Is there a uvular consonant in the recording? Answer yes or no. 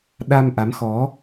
no